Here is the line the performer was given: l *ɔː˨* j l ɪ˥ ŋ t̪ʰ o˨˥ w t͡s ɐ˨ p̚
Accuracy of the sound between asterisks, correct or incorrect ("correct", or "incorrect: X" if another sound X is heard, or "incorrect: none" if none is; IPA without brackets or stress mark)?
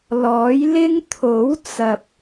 incorrect: ɔː˨˥